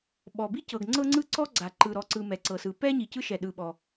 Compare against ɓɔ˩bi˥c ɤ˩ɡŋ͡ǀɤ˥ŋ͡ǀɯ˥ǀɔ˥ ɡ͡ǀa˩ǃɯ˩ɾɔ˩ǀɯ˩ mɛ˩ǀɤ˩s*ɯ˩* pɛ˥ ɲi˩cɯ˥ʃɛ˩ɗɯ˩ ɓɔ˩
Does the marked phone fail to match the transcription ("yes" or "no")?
no